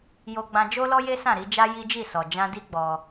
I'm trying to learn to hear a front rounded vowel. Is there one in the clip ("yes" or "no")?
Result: no